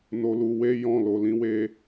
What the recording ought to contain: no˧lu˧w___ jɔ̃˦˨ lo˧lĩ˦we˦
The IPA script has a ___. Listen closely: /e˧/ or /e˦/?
e˦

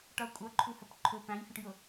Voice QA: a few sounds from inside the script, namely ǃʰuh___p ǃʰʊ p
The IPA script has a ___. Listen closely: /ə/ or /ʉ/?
ə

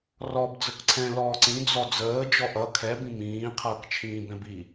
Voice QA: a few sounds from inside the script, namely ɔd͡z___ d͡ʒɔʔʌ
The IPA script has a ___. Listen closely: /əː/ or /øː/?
əː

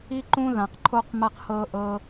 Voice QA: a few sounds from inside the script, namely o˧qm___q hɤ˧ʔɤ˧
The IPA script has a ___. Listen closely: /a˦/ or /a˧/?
a˧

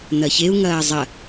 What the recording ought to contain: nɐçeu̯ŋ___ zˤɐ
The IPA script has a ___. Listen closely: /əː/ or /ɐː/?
ɐː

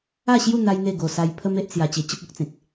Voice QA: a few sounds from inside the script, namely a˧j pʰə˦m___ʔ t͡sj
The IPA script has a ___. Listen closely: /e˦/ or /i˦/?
e˦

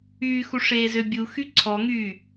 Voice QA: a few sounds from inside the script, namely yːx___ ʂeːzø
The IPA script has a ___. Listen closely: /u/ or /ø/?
u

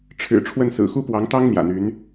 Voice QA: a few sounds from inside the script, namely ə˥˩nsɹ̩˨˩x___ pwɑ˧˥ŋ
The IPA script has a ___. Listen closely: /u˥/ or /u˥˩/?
u˥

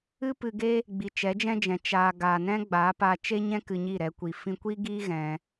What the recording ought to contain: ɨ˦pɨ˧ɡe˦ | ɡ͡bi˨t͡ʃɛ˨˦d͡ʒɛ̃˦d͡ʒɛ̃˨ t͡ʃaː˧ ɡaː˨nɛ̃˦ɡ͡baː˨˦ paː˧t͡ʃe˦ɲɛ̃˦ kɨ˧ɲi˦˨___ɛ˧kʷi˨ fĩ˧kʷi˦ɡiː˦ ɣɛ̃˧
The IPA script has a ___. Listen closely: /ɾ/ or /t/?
ɾ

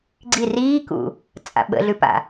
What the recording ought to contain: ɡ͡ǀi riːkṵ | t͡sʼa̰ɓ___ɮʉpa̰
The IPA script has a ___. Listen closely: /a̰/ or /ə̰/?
ə̰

